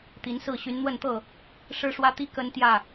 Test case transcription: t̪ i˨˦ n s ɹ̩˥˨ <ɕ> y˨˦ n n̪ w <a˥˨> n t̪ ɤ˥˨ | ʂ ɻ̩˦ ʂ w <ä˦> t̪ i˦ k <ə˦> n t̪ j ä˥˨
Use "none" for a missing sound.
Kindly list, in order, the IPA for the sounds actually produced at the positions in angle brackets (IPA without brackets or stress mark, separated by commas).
ɕ, ə˥˨, ä˦, ə˦